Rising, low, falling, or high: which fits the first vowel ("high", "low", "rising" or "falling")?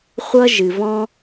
high